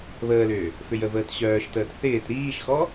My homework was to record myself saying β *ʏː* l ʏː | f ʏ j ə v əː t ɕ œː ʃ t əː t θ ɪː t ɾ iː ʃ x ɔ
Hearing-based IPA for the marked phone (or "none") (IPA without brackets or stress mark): əː